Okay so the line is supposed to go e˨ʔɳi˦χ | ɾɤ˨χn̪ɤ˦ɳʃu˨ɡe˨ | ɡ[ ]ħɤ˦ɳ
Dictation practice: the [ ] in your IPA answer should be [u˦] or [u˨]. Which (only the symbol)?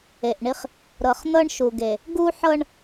u˦